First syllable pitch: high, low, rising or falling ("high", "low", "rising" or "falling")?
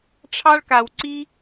high